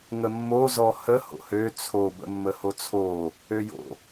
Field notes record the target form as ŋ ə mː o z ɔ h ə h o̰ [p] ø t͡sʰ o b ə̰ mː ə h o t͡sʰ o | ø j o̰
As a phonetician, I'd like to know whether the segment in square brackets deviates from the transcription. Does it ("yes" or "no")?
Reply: yes